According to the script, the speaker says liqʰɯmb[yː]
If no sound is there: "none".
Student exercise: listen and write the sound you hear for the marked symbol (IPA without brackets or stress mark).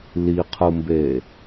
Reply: eː